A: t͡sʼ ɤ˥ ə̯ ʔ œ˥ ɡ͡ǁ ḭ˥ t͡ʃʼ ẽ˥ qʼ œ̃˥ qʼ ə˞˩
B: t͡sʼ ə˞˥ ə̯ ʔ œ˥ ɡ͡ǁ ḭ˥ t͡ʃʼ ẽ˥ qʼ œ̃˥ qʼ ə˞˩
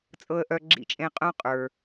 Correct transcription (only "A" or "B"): A